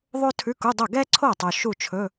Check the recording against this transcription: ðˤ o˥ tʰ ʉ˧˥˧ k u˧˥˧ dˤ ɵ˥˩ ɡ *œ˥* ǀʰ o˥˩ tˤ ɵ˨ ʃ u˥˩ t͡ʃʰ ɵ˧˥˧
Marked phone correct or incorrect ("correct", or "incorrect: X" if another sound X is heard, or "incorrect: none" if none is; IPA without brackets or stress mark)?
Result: incorrect: ɛ˥